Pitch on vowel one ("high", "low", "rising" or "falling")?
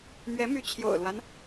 rising